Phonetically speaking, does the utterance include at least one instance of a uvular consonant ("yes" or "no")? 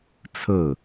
no